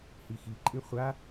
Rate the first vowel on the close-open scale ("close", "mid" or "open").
close